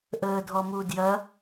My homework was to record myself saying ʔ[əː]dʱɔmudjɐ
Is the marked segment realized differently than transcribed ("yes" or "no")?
no